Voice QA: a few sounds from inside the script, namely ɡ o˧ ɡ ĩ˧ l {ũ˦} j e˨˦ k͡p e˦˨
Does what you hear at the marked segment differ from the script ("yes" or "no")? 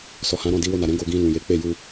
yes